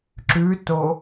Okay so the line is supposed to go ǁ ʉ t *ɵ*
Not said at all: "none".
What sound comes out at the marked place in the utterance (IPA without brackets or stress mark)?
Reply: o